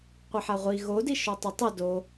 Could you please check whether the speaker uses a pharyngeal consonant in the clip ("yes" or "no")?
yes